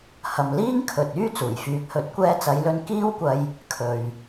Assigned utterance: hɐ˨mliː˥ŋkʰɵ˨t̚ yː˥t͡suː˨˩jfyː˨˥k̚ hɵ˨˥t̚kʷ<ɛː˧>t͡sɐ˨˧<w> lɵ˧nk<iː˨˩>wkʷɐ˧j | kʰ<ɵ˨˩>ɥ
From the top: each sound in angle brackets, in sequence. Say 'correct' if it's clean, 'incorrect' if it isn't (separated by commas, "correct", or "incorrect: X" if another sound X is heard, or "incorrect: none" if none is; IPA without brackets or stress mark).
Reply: correct, incorrect: j, incorrect: iː˥, incorrect: ɵ˨